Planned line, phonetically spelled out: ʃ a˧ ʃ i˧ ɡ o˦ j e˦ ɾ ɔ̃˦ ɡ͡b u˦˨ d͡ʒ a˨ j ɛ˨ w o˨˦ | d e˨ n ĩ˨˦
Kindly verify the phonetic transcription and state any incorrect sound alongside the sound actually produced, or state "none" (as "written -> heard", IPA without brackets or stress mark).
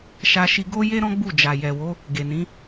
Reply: d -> ɡ